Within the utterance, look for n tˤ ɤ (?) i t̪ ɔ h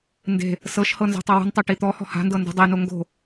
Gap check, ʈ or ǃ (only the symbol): ʈ